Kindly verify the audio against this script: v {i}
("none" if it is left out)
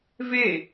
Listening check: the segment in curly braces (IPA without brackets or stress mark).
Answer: e